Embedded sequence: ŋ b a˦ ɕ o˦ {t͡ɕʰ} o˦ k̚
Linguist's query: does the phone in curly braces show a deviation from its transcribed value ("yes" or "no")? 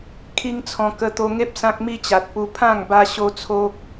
yes